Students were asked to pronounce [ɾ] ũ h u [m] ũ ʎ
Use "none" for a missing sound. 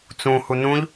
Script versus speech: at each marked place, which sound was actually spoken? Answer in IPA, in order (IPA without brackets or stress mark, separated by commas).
t͡s, n